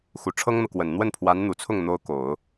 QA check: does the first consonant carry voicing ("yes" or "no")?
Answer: no